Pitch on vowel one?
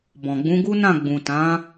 low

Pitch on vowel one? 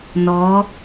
rising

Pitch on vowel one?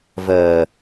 low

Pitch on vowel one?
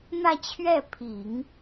falling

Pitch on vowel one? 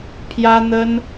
high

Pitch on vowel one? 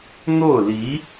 falling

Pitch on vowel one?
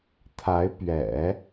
rising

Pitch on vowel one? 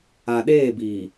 low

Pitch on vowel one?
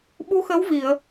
rising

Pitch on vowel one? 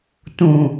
low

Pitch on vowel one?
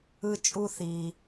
high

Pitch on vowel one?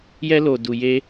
high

